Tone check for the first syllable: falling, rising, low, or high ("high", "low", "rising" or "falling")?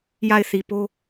falling